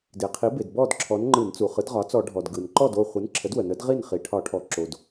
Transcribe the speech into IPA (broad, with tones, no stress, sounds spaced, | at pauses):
d e˩ qʰ i˩˥ b e˩ d b ɔ˥˨ d ǁʰ ɔ˩˥ n ŋ͡ǃ ɯ˧˩˧ n t͡s u˩ χ ɯ˩˥ d ʁ ɒ˩˥ t͡s ɔ˧˩˧ ɖʱ ɔ˩ d ɡ ɯ˩ n ǃ ɔ˥˨ d o˥˨ χʷ ɯ˩˥ n ǁʰ ə˩˥ d w ə˩ n ə˩˥ d ʁ i˥˨ n χ i˩ ʈʰ ɒ˧˩˧ ʈʰ ɔ˩˥ ǁ o˩ d